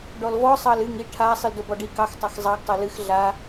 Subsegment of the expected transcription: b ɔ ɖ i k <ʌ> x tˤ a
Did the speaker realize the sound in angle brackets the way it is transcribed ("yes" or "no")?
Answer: no